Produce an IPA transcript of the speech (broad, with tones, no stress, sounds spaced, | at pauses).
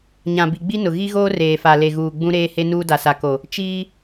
ɲ ã˨ b i˨ ɡ͡b i˦ n ʊ˨ ɣ i˦ ɣ oː˦ r eː˨ f a˨ l e˨ ɣ uː˨ ɡ͡b ũ˦ ɾ eː˦ h e˦ n uː˦ d a˨ s a˨ k o˨ | t͡ʃ iː˦